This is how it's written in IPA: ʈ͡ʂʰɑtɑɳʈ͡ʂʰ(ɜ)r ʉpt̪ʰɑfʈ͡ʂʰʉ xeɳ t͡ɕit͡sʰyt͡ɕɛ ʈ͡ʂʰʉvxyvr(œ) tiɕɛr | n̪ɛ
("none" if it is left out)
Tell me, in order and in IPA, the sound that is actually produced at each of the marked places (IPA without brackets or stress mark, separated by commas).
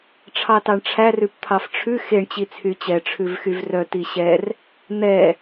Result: æ, œ